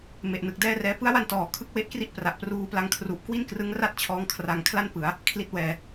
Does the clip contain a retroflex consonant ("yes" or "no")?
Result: no